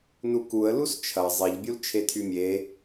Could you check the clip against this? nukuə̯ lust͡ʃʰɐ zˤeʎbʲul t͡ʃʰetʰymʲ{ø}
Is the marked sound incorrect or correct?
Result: incorrect